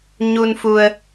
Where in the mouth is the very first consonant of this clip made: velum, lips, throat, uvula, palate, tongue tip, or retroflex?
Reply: palate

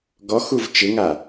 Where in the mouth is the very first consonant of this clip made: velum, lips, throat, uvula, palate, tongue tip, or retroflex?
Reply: velum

